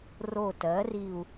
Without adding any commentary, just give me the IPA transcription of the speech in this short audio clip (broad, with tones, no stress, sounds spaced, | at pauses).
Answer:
r o˦˨ t ɜ˩˥ r i˦˨ u̯